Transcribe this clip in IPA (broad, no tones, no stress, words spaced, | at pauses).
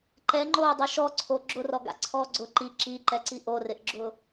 ǃɛŋ͡ǃoːdˤo ʃɔǀʰo ɡ͡ǁʊrɔɡa̰ǀʰɔː ɡ͡ǀʊ ǃi ǁiǃɛǀi ʔorɪʔɡ͡ǁʊ